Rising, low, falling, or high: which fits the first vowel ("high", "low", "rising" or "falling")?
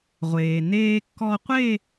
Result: low